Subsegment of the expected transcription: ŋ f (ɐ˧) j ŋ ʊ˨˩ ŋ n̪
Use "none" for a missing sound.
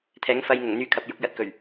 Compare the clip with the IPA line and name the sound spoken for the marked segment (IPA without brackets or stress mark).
ɐ˧